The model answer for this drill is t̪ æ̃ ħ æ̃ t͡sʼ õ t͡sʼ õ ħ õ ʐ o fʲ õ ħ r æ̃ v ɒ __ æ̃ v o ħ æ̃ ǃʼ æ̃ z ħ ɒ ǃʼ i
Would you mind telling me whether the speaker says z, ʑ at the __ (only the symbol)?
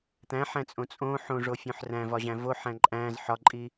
ʑ